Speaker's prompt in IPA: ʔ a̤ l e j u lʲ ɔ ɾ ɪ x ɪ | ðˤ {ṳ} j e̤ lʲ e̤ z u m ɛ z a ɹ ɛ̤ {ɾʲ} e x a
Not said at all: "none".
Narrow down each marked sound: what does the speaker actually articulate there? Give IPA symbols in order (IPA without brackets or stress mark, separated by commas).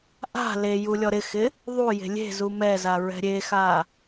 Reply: u, ɾʲ